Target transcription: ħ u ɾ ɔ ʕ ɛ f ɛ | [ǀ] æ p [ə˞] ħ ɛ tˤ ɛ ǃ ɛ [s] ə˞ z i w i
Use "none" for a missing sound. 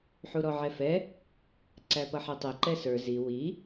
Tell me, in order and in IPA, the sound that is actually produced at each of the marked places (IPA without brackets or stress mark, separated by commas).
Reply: ǀ, ʌ, s